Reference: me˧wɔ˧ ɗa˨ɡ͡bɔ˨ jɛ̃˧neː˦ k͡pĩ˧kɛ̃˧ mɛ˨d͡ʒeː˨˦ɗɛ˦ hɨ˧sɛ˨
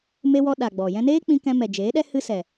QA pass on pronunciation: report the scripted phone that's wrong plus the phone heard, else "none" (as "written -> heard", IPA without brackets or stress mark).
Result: none